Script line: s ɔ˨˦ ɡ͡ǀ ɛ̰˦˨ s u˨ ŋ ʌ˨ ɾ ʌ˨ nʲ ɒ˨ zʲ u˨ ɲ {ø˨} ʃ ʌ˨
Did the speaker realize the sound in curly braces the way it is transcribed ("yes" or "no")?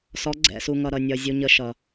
no